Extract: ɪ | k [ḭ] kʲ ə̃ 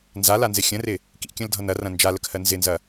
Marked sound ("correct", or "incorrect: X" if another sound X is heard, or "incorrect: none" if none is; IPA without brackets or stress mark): correct